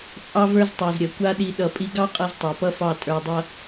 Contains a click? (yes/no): no